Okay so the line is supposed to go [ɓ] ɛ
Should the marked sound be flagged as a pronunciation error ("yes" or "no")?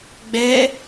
yes